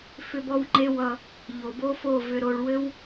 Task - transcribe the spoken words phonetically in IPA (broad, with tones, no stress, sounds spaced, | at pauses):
f ʏ˧ b ɔ˧ w ŋ͡ǃ e˧ w ʌ˨ | ʎ o˨ b o˦ f o˦˨ v ʏ˨ ɾ o˨ ɭ w ɘ˦ w